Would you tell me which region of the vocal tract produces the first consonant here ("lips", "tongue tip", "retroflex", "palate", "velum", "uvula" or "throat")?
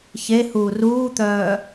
palate